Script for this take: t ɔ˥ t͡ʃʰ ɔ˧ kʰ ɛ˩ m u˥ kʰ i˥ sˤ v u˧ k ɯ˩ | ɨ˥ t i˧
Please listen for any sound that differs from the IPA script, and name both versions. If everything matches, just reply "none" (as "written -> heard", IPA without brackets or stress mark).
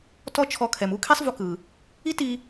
ɨ˥ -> i˥